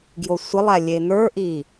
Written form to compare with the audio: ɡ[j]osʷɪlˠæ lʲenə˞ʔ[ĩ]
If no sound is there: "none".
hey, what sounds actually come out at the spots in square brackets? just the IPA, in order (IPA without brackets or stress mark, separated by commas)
j, i